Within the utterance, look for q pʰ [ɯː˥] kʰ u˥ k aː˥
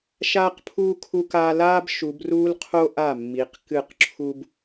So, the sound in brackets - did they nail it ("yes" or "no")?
no